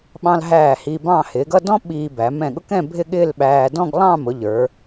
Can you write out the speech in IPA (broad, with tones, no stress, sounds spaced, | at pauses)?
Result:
ɓ ɑ̃˧ l ɦ æː˧˩ h i˧ b ɑ̃˥˧ h ɪː˩˧ ɡ ʌ˥˧ d ɔ̃˥ ɓ iː˧ b æ˩˧ m ɛ̃˧˩ ɠ ʊ˥ k ɛ̃˥˧ bʱ ɪ˥˧ ɠ ɪː˥˧ l ɓ æː˧ d ɔ̃˥˧ ɡ lˠ ɑ̃˥˧ m ʊ˩˧ ʎ ə˞˩˧